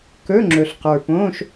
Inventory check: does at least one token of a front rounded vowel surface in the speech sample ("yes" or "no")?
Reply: no